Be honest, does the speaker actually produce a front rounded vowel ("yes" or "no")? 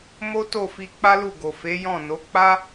no